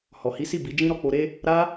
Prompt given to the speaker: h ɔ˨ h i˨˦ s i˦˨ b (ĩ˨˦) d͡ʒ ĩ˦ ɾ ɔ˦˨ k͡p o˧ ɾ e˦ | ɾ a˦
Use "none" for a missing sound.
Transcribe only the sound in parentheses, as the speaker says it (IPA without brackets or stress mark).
i˨˦